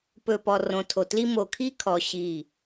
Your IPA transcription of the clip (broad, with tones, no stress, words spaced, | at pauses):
pɵ˨pɔ˨ rõ˨tʰo˨tli˦ mo˨kʰi˦kʰɔ˨ ɕi˦˨